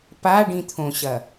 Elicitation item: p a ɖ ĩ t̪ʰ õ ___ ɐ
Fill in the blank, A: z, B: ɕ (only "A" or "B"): B